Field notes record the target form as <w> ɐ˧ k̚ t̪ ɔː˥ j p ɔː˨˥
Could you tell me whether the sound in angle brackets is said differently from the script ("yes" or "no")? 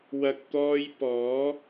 no